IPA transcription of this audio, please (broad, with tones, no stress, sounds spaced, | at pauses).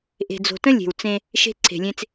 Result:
ʔ e̤˨ d͡z o̤˨ t ə̃˦ lʲ e̤˨ w t͡s ẽ˦ | ʃ e̤˦ ǀʰ e̤˨ lʲ ẽ˦ t͡s